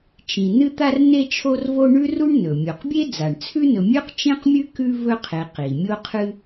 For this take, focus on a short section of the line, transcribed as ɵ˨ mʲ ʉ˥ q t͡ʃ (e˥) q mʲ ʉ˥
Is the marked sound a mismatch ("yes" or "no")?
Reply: yes